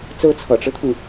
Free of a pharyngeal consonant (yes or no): yes